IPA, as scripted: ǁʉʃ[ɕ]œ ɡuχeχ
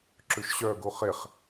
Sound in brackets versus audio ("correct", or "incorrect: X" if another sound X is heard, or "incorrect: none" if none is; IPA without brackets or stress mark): correct